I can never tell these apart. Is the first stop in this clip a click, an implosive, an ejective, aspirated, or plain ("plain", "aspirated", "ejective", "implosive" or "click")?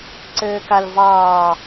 click